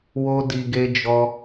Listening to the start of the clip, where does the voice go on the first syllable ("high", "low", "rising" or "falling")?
high